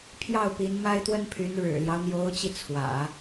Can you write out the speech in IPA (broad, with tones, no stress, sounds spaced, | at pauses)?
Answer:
pʰ j ɑ˥˩ ʊ̯ p i˧˥ n m a˥ ɪ̯ t̪ w ə˥ n pʰ y˧˥ n ɻ ɻ̩˨˩ l j ɑ˦ ʊ̯ n̪ j o˧˥ ʊ̯ t͡ɕ i˧ t͡sʰ w ä̰˨˩˦